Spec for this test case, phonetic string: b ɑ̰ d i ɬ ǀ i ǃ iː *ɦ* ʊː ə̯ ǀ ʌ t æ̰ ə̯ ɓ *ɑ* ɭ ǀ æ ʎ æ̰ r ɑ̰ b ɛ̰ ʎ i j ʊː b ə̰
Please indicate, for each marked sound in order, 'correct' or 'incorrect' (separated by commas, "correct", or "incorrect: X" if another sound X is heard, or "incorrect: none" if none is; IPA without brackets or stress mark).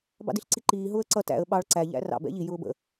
correct, correct